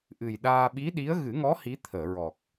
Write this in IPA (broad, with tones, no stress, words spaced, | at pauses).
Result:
ʔɨ˨˩jɗaː˧ ɓi˧˥ɗi˧˥ə̯ ɣɨ˨˩˦ŋɔ˧˥ hi˧˥ t̪ʰəː˨˩˨ɹɔ˨˩k̚